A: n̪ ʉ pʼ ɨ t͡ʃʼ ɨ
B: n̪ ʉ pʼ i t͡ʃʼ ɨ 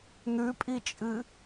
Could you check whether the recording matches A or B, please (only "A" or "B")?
B